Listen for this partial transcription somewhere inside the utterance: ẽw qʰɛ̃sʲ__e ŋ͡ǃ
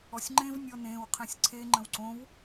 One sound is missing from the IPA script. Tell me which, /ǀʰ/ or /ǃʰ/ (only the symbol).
ǀʰ